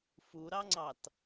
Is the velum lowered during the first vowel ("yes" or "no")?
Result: no